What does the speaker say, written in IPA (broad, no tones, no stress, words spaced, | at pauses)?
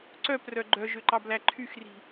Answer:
ǀœprœ ɡ͡ǃœʒøǃɑblæ ǃʰyxri̤